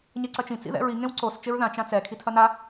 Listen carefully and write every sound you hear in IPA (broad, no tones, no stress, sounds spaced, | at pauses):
ɲ e ǀ ɐ t͡ʃ ĩ t͡s ḭ ð ɛ̰ ɹ i ŋ ẽ w ǀ o s t͡ʃ e ɹ ð ã t͡ʃ ã t͡s ɛ kʰ i tʰ ɐ n a